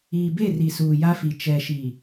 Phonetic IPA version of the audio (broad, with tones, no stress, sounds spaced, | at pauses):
iː˨ b e˦˨ r i˨ s uː˨ j a˦ f i˨ t͡ʃ ɛ˨ ʃ i˨